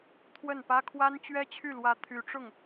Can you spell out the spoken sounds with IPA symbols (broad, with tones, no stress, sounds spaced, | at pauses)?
t̪ʰ w ə˥˩ n p ä˥ kʰ w a˥ n t͡ɕ ɥ ɛ˥ t͡ɕʰ y˥˩ l w ä˧˥ t̪ʰ y˧˥ ʈ͡ʂ ʊ˥˩ ŋ